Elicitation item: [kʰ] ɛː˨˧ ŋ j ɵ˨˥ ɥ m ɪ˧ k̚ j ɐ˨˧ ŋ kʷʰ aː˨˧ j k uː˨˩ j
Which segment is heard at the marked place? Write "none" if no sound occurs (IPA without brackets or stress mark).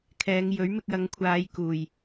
kʰ